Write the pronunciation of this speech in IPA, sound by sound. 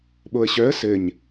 ɓ o ə̯ ɕ œ ə̯ s ɘ ɲ

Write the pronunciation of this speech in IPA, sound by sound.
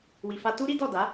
w i˨ f a˧ t u˦ ɾ i˦ d ɔ˦˨ d a˨˦

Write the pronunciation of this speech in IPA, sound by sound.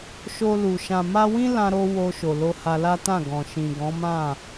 ʃ o˧ l u˨ ʃ ã˨ m a˧ w ĩ˦ l ã˧ ɾ o˧ w o˧ ʃ o˨ l o˧ h a˧ l a˦ t ã˦˨ ɡ ɔ̃˨ ʃ ĩ˨ ɡ ɔ̃˨˦ m ã˦˨

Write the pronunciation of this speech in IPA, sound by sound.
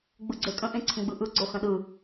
ɡ͡b ɯ ɡ͡ǀ e kʼ ə̃ ʔ ẽ ǀʰ ə̃ ɡ͡b ɯ ʔ ɯ ɡ͡ǀ o x ə̃ ɗ ɯ

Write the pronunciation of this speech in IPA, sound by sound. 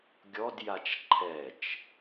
ɡʲ ɔ d j a t͡ʃ ǃʰ ɛ t͡ʃ

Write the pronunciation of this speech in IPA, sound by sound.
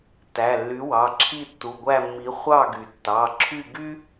t æ˩˧˩ lː y˨˥ w ɑ˩˧˩ ǁʰ i˥˨ tː u˩˧˩ ɡʷ æ˥˨ mː i˨˥ χʷ ɑ˥˨ ɡ y˩ tː ɑ˩˧˩ ǁʰ y˥˨ ɡ y˥

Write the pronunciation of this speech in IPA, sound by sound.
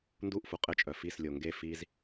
n d u ʔ f u qʼ ɘ t͡ʃʼ œ f i s lʲ o ŋ ɡ e f i z

